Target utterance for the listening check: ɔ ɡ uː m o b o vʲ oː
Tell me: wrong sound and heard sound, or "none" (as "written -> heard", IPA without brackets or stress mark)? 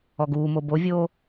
none